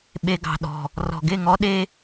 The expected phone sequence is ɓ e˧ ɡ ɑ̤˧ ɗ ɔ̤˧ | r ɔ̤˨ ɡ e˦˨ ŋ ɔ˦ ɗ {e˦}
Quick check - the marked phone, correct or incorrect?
correct